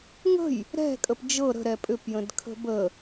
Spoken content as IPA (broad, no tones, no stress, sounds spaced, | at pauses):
ŋ ə̤ j | ɾ ɛ̤ kʼ ə p d͡ʒ ɤ ɾ ə̤ ɾ ɛ pʼ ʏ p j ə̃ d kʰ ə̤ b ə